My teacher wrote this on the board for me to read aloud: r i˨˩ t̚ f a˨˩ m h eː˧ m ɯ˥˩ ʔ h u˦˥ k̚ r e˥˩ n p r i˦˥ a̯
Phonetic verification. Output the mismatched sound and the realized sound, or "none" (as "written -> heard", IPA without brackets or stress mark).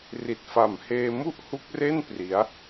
ɯ˥˩ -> u˥˩